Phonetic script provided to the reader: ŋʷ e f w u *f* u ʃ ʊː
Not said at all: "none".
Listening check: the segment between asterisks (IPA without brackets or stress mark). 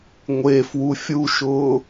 fʲ